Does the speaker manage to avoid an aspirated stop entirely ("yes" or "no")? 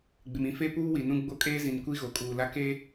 yes